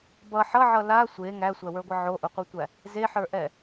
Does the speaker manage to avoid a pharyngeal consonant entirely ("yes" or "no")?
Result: no